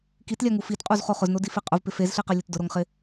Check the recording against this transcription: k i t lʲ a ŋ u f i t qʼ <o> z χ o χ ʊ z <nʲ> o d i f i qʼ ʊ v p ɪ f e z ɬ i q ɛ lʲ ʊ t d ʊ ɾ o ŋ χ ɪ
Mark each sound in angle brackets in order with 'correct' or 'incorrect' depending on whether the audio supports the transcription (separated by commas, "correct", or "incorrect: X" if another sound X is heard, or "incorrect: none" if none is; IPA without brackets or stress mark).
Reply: incorrect: u, incorrect: n